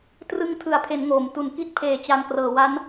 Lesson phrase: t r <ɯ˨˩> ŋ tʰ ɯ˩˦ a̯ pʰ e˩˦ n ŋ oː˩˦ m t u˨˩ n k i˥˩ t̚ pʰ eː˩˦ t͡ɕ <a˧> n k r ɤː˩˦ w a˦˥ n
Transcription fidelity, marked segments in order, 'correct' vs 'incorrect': incorrect: ɯ˧, incorrect: a˨˩

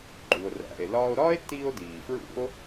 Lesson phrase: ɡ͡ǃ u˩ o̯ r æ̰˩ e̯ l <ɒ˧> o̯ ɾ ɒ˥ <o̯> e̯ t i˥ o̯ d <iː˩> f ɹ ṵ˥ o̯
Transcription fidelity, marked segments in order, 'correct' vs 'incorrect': incorrect: ɒː˧, incorrect: none, correct

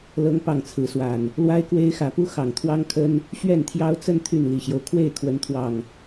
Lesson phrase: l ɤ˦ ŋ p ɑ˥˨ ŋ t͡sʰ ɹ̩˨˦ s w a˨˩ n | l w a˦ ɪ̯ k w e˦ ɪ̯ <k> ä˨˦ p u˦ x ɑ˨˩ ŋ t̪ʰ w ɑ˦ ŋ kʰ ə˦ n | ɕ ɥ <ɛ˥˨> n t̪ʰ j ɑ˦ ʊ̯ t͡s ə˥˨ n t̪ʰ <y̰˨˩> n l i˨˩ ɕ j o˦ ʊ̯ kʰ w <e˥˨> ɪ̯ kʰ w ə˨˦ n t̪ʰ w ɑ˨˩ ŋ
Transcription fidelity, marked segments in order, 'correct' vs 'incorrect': incorrect: x, correct, incorrect: y˥˨, correct

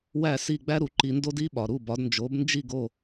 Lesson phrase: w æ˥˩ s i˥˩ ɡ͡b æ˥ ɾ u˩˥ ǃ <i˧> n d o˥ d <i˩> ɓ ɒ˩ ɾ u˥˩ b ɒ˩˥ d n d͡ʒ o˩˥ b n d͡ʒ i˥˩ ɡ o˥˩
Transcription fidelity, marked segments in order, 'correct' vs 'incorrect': correct, incorrect: i˥

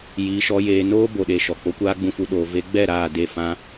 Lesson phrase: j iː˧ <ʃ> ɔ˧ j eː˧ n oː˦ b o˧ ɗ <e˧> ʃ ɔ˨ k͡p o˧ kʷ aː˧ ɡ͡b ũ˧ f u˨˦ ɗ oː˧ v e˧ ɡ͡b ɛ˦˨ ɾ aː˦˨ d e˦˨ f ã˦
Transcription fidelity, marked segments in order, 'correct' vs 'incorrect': correct, correct

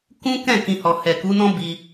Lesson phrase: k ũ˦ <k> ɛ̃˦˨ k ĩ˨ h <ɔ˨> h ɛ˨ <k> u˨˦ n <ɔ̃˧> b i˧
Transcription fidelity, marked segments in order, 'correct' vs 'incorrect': correct, correct, correct, incorrect: ɔ̃˦

